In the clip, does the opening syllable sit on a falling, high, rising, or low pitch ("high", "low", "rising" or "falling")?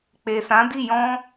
low